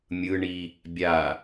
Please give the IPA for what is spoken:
mʲ ɯ ɳ i | bʲ a

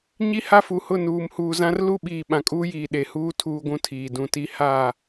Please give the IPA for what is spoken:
ɲ i˦ h a˦ f u˨ h ʊ˦˨ n uː˨ m h uː˨ z ã˦ r l u˦ ɓ iː˨ ɓ ã˨ kʼ uː˦ j iː˨ ɗ e˨ h uː˦ tʰ uː˦ ɡʷ ũ˦ tʰ iː˨ d ũ˨ t i˦ h a˦˨

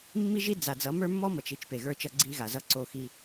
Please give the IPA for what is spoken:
mː i˦ ʒ i˦ d͡z a˨ d͡z ʌ˨˦ m ə˞˦ mː ɔ˦ m ʌ˨ t͡ʃ i˦ t͡ʃ p e˨ ɣ ə˞˦ t͡ʃ ʌ˦ ɡ͡ǀ i˦ ɣ a˨ z ʌ˦ ǀ o˦˨ x i˦

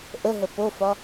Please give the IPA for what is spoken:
ʔ ə ɦ ə p o f ɒ

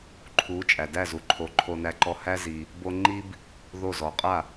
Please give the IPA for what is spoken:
ǃʰ u˩˥ t͡ʃʼ æ˩ d æ˥˩ z u˩ ǃʰ o˩˥ ǃʰ o˧ n æ˧ ǃ ɔ˧ h æ˥ z i˩ | b o˥ ŋ͡ǃ i˥ b | ð o˥˩ z ɔ˩ qʼ a˥˩

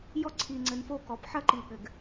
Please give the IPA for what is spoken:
j ɔ˦ ǀʰ i˨ ŋ͡ǀ ɘ˨ n f o˦ k ɔ˨ p ħ ɐ˦ ǃ i˨ ɠ ɘ˨ ɡ

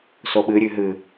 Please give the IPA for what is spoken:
s o ɓ ɨ ɾʲ ʉ ɦ ɨ

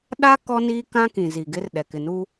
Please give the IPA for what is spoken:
ɗ a˦ k ɔ˦ n iː˦ k ã˦ k ĩ˨ z i˨ ɡ ɪ˦ r ɗ ɛ˨ k ɪ˨ n u˦

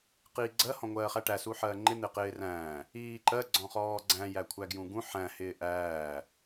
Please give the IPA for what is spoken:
q iː ɡ͡ǀ ɜ h ɔ̃ ŋʷ ɜː χ æ ʈ æ s u ħ ɜː ŋ͡ǃ ɪ n̪ ɪ q ɪː r æ̃ː | iː ǃ ɜ ɡ͡ǀ ɔ̃ χ ɔː ɡ͡ǀ æ̃ j æ kʷʰ æ ɡ j ũ ɡ ũ ħ æ̃ h ɪː ʔ æː

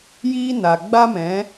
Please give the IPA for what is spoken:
j iː˦ n a˨ ɡ͡b a˦ m ɛ̃˨˦

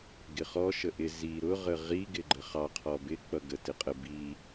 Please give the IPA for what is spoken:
ɡ ɪ χ ɔ ʃ ə ʔ ɪ z i ɾ ʊ ʁ ə ʁ i ɡ ɪ ɡ͡ǃ ə χ ɑ qʰ ɔ b ɪ k͡p ʌ ɡ ə t ɪ qʼ ə b i

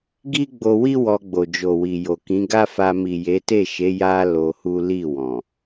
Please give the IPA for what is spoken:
ɡ i˦ ɡ͡b o˧ w i˦ w ɔ˧ ɡ͡b o˨ d͡ʒ o˨ w i˨ j o˨ k ĩ˨˦ ɡ a˦ f a˧ m i˨ j e˨˦ t e˦˨ ʃ e˨˦ j a˧ l o˧ h u˦ l i˦˨ w ɔ̃˨

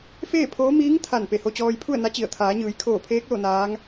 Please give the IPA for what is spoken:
f eː˥˨ pʰ oː˧˥ m iː˧˥ ŋ t̪ʰ a˧˩ n p e˧˩ h o˧ t͡ɕ ɔː˧ j pʰ u˥˨ ə̯ n a˧˥ t͡ɕ i˧˩ ə̯ t̪ʰ aː˩˧ ɲ ɯː˩˧ j kʰ oː˧˩ pʰ eː˧˥ k̚ l o˥˨ n aː˧˥ ŋ

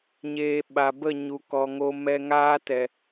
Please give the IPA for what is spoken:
ɲ eː˨ ɓ a˨ b ə˦˨ ɲ u˨ k ɔ˨ ŋ o˧ m ɛ˧ ŋ aː˦ t ɛ˨

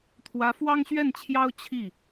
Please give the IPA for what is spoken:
t̪ʰ w ä˧˥ f w ɑ˥ ŋ ɕ ɥ ɛ˥˩ n t͡ɕʰ j ɑ˥ ʊ̯ t͡ɕʰ i˥˩

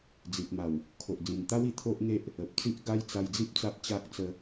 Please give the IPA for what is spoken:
d͡z i˨ t̚ m a˨˩ w | kʰ o˨ ʔ d͡z ĩ˨˩ n t̪ a˦ w i˨˩ t̪ʰ o˦ ʔ ŋ e˦ ʔ | ə˨ p̚ t͡s i˦ ʔ ɡ a˦ j t͡s a˧ j d͡z i˦ p̚ t͡s a˦ p̚ t͡ɕ a˦ k̚ t͡s ə˦

